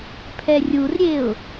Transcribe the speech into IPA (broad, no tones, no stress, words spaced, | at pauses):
pʰɛrʲurɾʲeʊ̯